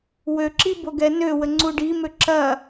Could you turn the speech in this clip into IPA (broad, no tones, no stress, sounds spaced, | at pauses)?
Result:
w ø ǁ i b o ɡ ɛ n ø w ə ŋ͡ǀ u ɖ i m ø ǁ ɐ